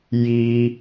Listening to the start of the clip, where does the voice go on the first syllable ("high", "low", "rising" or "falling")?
high